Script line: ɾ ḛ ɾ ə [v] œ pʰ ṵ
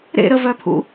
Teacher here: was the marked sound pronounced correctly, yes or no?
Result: yes